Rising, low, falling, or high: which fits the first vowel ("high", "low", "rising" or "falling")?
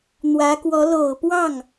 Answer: rising